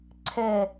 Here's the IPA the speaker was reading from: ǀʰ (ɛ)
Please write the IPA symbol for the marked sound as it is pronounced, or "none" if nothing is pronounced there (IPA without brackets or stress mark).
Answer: ɛ